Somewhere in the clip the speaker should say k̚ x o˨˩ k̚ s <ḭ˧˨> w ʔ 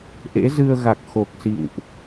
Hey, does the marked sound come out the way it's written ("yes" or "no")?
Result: yes